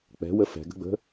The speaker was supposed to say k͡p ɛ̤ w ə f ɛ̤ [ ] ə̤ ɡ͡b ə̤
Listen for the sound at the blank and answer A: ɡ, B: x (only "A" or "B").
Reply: A